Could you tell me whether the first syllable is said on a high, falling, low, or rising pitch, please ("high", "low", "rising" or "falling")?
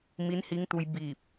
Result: rising